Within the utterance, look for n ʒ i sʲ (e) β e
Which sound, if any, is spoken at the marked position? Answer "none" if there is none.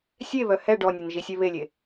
ɛ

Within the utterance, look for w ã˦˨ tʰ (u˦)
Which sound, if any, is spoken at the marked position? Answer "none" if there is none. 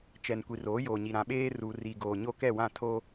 o˦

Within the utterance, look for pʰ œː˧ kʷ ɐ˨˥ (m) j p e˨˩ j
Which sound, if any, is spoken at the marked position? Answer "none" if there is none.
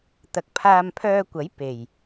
none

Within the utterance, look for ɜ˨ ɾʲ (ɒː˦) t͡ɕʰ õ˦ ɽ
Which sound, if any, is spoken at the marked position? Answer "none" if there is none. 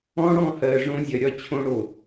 ɒ˦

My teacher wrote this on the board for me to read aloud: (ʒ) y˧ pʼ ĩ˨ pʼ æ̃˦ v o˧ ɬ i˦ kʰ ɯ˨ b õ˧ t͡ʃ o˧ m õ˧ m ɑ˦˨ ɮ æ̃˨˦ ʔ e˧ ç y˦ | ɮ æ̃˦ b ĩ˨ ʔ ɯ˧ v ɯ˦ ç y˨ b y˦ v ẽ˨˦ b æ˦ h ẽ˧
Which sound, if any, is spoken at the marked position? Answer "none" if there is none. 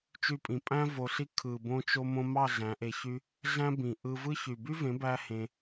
t͡ʃ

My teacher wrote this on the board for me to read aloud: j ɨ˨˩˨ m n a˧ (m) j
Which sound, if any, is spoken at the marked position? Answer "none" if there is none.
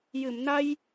none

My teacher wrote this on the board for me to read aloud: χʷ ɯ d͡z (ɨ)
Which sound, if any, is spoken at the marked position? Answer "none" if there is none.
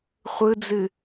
ɨ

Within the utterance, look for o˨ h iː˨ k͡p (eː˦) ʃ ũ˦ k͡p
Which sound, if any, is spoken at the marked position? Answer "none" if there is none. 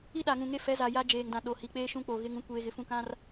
eː˦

